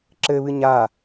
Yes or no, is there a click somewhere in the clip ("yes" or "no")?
yes